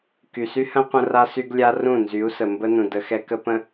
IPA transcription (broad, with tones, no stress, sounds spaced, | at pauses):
k y˨ s y˦ h ə̃˦ qʷ ə̃˦ r a˦ s y˦ ɡ lʲ a˦ r ũ˦˨ n z y˨˦ u̯ s ə˨ m b ə˦ n ũ˨ d ə˦ x ɛ˦ k ə˦ p ə̃˨